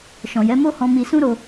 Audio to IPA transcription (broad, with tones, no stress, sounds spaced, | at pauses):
ʃ ɔ̃˨ j ɛ˨˦ m o˦ h ɔ̃˧ m i˧ s ũ˦ ɾ o˧